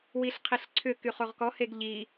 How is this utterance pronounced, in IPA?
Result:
w i ɬ qʰ i ɬ ǀʰ ʏ k y χ o ʁ k ɔ h e ɡ ʎ i

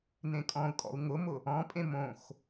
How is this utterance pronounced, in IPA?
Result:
n ẽ kʼ ɔ̃ u̯ kʼ ɔ̰ u̯ ŋ ʊ m ʊ | ɔ̃ pʼ ẽ m õ x

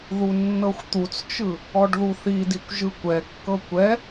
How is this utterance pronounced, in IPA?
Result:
ð u nː ɤ xʷ t̪ u t͡s t͡ʃ ɯ | ɔ ɖ ð u θ i d i kʷ ʒ ɯ kʷ ɛ kː ɤ kʷ ɛ

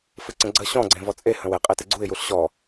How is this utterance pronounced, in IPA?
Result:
f ɨ ǀ ə̃ ɡ͡ǀ ə ɕ ɔ̃ ɡ͡ǀ ẽ v ɔ t͡sʼ e h ə̃ w e qʼ e t ɨ ɡ͡ǀ u ɪ̯ j u ɬ ɕ ɔ

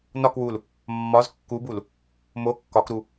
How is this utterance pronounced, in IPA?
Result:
n ɒ k w u l | mː ɒ z kː u b u l | m o kː ɒ k ɾ u

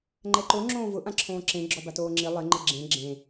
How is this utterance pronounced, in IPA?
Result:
ŋ͡ǃ ɛ ǃ o ŋ͡ǁ õː v ʊ ʔ ã ǁʰ õː ǁ ẽ ɡ͡ǁ ɔ b a t oː ŋ͡ǁ i lˠ ɪ ŋ͡ǃ ɪ ɡ͡ǁ ẽ ɡ͡ǁ ẽ

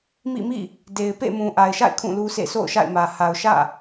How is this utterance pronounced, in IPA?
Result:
m ḭ˦˨ m ḭ˦˨ | d e˨ ɪ̯ p ḛ˦˨ m ũ˨ ʔ a˨ ɪ̯ ʃ a̰˦˨ ɪ̯ kʰ ũ˦˨ l u˦ s ḛ˦˨ s o̰˦˨ ʊ̯ ʃ a̰˦˨ ɪ̯ m ä˨ h a˨ ʊ̯ ʃ ä̰˦˨

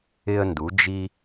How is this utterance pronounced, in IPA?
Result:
ɪ˧ ə̯ n d u˩˧ d͡ʒ i˧

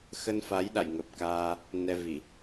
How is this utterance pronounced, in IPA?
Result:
x ə˧ n f a˨˦ j ɗ a̰˧˨ j ŋ ə˨˩ p̚ k aː˧ | n ɛ˧ v i˧˩˨

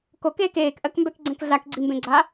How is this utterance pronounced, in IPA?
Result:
k o k eː k eː k ʔ ɜ k m b ɛ k ɡ͡ǀ ɛ̃ k ɮ a k ɡ͡ǀ i m b ẽ ɡ͡ǀ a

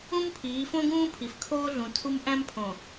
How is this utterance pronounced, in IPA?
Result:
ũ˦ m pʰ iː˨˦ f õ˦ ɡ ũː˦ pʰ i˨ f kʰ oː˦ ɮ ũ˨ tʰ u˦ m ʔ æ̃˦ m pʰ õ˨

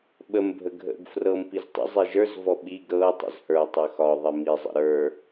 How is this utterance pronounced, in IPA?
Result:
ɓ ə m bʱ ə ɡʱ ə̰ ɡ f r ɤ m p i z tˤ ə̰ zˤ i ʒ ə˞ z v ɔ ɓ i ɡ ɾ ɤ tˤ ə̰ z h ə˞ tˤ ə x ɒ ðˤ i m i zˤ ə̰ ɾ ə˞

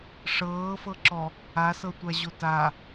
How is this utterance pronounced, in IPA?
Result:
ʂ ɤː f ɤ ǁ ɔ | a s ɤ tʷ a ʑ o t a

